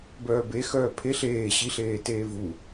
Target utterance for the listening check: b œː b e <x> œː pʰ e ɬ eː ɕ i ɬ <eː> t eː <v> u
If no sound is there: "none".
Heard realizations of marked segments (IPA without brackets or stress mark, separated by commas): x, eː, v